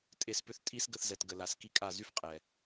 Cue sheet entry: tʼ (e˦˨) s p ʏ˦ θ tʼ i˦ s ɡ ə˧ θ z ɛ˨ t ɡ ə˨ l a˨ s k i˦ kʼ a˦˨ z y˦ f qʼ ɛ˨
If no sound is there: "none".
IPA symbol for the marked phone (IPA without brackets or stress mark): e˦˨